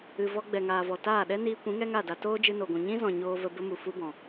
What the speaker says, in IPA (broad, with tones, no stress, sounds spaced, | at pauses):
ɨ˨ v ɔ˧ ɡ͡b ɛ˨ ŋ aː˨ v ɔ˨ t aː˦˨ ɗ ɛ˦ n iː˧ kʷ ĩ˨˦ ŋ ɛ˦ ŋ a˦˨ d a˧ t oː˦ d͡ʒ ɨ˧ n o˨ ɡʷ ũ˨ ɲ ĩ˦ z ɔ̃˨ ɲ oː˧ v ə˧ b ə˦ m u˨ f u˦ b ɔ̃˨